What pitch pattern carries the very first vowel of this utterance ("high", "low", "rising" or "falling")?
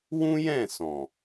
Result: high